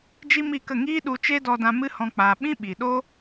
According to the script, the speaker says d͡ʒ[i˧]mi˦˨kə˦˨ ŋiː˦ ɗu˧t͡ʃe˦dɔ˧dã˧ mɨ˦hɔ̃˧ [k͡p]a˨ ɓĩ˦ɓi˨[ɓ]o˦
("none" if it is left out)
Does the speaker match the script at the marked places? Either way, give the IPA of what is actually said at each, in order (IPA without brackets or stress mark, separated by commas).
i˦, k͡p, ɗ